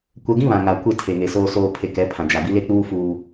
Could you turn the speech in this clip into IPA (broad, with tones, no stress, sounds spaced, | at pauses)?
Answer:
kʷ ɛ˨ ɡ ĩ˦ β ã˨ ŋ a˨ kʷ e˦˨ tʰ e˨ ŋ e˨ s oː˨ s oː˨ pʰ e˨ k ɛ˨˦ pʰ ã˨ d͡ʒ a˨ b i˦ l e˦ k͡p uː˦ f uː˦